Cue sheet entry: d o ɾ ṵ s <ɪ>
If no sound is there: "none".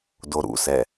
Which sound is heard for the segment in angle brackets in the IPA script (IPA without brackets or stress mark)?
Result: ɛ